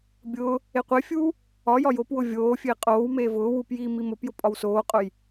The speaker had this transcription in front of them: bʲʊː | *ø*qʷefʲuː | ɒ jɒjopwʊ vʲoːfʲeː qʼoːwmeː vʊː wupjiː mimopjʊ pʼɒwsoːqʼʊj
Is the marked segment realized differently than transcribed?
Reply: yes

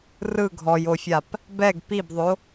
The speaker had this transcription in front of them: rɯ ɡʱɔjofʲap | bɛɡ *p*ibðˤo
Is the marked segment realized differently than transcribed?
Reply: no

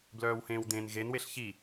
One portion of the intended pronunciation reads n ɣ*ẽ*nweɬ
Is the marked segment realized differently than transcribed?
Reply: yes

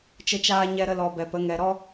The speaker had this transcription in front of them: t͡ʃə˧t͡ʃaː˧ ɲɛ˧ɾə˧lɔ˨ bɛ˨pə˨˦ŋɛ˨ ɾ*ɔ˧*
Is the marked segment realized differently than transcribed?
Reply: no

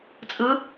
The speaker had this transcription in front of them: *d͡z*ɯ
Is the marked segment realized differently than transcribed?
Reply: yes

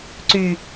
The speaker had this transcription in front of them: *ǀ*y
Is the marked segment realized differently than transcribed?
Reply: no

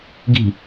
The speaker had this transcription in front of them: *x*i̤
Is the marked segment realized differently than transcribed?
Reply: yes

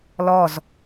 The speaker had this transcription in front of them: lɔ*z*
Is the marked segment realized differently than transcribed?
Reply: no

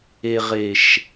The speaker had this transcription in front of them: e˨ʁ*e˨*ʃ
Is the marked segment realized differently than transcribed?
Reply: no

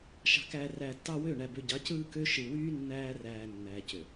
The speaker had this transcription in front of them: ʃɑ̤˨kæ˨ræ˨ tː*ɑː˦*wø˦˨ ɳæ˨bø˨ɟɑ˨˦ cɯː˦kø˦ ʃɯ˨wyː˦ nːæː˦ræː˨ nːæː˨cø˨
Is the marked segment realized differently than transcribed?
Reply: yes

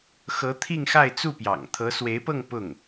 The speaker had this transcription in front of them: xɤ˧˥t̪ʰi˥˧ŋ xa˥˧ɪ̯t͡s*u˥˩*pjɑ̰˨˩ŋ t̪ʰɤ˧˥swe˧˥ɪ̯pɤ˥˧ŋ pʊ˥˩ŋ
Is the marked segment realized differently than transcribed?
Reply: no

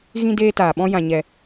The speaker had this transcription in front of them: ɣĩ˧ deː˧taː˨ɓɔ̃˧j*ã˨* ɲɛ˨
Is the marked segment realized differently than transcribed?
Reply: no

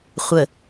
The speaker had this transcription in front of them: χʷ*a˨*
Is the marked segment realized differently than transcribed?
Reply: yes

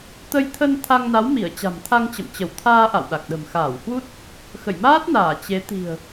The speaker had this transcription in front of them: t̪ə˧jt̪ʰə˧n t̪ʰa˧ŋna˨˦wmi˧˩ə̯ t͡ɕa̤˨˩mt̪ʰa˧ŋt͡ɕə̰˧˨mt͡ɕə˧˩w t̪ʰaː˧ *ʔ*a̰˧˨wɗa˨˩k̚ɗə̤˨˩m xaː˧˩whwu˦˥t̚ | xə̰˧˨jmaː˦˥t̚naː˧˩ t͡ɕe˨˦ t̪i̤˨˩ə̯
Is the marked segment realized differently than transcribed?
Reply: no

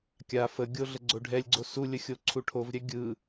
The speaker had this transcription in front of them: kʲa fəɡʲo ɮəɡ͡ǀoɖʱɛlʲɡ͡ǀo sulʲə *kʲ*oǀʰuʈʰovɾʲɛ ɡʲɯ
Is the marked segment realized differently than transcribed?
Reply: yes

